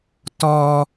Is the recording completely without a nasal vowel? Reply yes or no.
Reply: yes